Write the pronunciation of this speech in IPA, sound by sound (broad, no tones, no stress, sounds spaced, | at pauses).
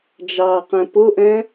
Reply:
d͡ʒ ɑː q ɛ̃ p ʊ ʔ ɛ̃